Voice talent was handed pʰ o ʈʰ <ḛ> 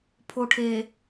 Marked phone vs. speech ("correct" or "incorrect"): incorrect